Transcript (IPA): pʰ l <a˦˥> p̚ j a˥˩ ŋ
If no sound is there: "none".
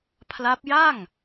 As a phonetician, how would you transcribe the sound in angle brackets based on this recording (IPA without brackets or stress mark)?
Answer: a˦˥